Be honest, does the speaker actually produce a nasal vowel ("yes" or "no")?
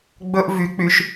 no